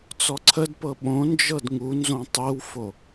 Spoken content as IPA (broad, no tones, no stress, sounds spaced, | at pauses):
t͡s ɔ ǀʰ ə d p ɤ ɓ õ n d͡ʒ ɤ d ŋ u n z õ tˤ i w f o